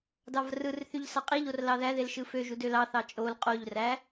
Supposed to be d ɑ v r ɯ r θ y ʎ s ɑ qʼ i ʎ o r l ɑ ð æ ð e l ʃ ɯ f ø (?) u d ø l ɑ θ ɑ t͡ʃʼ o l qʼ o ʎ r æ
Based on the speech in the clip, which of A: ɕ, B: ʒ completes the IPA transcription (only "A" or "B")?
B